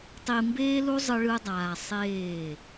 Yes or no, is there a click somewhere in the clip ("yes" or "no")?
no